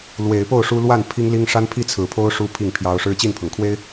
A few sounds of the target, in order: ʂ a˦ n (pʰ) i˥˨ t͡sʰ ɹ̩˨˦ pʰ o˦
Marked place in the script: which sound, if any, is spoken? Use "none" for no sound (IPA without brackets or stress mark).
pʰ